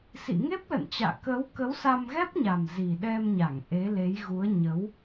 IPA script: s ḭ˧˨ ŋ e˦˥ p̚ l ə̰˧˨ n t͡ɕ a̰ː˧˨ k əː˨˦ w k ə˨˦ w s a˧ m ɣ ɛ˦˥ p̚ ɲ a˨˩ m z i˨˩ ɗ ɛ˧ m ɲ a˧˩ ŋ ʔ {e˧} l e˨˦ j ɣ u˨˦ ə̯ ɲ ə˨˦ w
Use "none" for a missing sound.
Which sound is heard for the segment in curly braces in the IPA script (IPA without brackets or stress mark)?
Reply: e˨˦